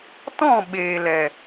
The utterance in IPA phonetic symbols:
tɔ̃˦˨ɓeː˨lɛ˨

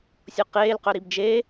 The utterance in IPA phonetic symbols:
sʲoqeːlqœ ɾibd͡ʒe

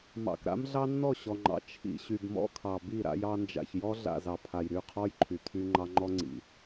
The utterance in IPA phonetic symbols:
mɑ̰˨kɾa̰˦m ɮɑ˦nːɔ˦˨ɕɔ˨ŋ͡ǃɑ̰˨ t͡ʃʰḭ˨ ɕy˨bmɔ̰˦kʰɑ˨ bi˦˨ ɾa̰˦jɑ˦nd͡ʒa̰˨ç jɔ˦ɮa̰˨zɑ˨ pʰa˨jɾy˦˨qʰɔ˦j ǃʰy˨tʰy˦ ŋ͡ǃɑ˦ŋ͡ǃɔ˦ŋ͡ǀḭ˨

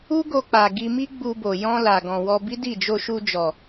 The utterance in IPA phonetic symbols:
u˦ ɡo˧k͡pa˨ɡi˧mi˦ ɡ͡bu˧bo˨ jɔ̃˧ la˨ ɡɔ̃˨wɔ˧ bi˦di˦˨ d͡ʒo˧ʃu˧d͡ʒɔ˨

